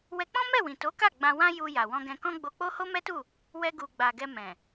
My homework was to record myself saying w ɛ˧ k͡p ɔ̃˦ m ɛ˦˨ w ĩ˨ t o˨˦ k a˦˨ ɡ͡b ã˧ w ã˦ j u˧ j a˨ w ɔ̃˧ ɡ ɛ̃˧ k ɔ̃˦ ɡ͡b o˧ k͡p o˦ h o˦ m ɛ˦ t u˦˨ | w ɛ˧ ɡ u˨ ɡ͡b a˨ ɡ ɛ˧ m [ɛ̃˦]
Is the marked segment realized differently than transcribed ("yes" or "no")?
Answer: yes